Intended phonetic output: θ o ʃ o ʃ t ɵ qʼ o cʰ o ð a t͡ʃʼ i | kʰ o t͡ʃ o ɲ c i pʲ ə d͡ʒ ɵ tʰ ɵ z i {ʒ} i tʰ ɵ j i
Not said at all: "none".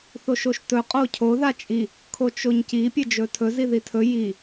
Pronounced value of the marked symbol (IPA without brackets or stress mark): ð